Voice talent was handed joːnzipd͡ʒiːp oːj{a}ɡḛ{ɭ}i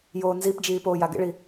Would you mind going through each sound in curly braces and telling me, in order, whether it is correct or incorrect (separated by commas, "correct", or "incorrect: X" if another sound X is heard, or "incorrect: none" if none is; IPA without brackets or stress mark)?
correct, correct